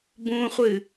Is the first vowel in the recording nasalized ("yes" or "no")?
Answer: yes